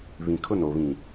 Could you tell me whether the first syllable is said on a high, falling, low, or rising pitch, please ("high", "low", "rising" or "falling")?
low